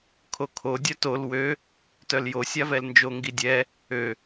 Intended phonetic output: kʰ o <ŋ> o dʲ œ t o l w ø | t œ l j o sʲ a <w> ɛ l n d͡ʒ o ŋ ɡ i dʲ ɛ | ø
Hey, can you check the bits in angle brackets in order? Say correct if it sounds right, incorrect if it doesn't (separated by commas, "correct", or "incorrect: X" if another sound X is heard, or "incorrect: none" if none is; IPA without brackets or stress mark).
incorrect: kʰ, incorrect: v